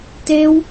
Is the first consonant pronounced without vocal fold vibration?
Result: yes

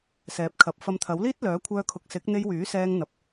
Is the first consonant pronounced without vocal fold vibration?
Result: yes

